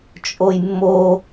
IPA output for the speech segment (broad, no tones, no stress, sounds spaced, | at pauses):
t͡ʃʼ o j mː o